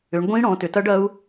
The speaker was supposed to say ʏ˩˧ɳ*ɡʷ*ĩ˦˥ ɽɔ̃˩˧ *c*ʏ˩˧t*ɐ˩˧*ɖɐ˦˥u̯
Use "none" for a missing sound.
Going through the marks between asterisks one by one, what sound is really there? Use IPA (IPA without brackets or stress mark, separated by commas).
ɡʷ, t, ɐ˦˥